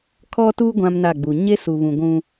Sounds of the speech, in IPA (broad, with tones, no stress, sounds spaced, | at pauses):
kʰ ɔ˦ t uː˦ ɡʷ ã˦ m n a˦˨ ɡ͡b u˨ ɲ e˦ s u˨ β ũ˨ ɡʷ ũ˦